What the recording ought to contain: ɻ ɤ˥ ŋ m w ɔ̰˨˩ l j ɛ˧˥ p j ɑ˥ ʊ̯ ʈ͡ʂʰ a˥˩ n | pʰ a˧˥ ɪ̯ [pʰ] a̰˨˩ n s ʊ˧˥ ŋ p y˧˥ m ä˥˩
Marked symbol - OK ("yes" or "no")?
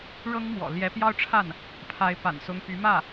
no